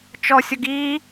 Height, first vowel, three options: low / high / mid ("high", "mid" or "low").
mid